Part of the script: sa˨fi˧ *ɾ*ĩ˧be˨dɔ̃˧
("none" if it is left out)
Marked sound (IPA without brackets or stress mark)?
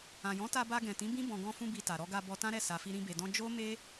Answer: ɾ